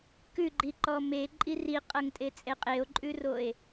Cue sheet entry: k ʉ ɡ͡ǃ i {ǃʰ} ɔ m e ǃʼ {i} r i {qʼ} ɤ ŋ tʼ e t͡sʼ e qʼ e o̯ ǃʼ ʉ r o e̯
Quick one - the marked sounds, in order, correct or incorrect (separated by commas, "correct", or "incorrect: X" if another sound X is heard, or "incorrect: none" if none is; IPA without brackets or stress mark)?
incorrect: ǃ, correct, correct